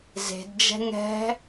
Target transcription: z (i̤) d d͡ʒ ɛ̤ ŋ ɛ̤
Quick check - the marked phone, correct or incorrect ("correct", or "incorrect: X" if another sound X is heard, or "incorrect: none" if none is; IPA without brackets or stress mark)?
incorrect: e̤